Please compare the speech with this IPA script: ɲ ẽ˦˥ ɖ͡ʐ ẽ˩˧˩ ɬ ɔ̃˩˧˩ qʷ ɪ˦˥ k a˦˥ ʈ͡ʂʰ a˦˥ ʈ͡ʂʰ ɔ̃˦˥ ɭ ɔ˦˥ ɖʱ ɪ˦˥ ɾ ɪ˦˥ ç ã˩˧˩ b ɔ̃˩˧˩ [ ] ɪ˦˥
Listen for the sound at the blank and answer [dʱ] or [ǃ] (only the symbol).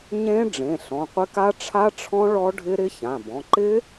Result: ǃ